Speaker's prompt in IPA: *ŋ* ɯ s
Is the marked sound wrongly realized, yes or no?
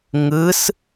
no